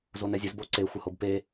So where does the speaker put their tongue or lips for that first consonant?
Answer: tongue tip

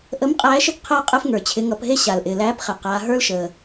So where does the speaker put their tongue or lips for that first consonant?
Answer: throat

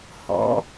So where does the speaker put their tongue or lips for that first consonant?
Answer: throat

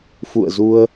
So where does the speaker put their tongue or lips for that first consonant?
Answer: lips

